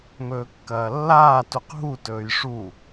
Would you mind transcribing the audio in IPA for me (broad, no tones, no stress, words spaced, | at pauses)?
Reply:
mɵːkːɐːlːaː tuqɦu tɵːjʂu